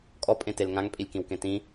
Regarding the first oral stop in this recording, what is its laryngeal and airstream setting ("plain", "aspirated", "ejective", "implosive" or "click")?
ejective